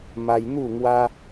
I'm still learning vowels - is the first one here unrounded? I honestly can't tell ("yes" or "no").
yes